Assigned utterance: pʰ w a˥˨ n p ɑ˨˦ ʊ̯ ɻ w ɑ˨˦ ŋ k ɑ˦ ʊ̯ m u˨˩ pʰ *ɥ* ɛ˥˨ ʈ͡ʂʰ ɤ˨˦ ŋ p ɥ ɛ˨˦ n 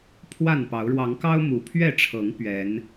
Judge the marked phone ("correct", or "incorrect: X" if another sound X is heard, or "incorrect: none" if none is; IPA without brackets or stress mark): correct